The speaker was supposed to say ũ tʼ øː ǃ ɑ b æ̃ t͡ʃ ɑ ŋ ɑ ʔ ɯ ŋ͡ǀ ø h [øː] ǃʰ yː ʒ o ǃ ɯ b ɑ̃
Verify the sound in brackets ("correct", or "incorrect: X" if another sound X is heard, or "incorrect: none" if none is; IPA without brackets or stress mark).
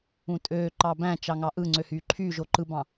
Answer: incorrect: yː